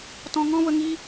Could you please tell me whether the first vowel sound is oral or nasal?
nasal